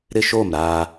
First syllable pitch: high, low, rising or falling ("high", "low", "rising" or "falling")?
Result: falling